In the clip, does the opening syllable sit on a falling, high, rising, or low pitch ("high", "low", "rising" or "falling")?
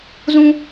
high